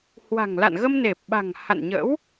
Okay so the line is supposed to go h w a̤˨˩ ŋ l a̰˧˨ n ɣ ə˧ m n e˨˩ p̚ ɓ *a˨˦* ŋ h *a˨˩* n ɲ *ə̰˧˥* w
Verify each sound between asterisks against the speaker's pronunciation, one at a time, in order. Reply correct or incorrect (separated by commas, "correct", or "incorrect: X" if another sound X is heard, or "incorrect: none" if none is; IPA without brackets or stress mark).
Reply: incorrect: a̤˨˩, incorrect: a̰˧˨, correct